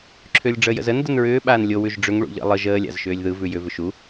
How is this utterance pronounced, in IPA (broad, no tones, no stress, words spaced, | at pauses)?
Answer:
ǁʰʏːlʲɖ͡ʐəːjə̰zən dənɹʏː ɓaːnlʲo wʉʒɖ͡ʐʏŋ ɭṵʎə̰ lˠɯʒ əː lʲa̰zʃʏːlʲðɯ vʉjʏ vʏʃu